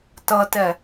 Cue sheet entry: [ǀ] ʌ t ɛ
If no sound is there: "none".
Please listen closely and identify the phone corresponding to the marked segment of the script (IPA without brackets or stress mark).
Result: t